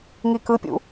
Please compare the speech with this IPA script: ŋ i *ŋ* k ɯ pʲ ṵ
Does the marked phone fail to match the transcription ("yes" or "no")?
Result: yes